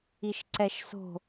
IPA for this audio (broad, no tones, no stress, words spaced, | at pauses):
iʃǀɛʃso̤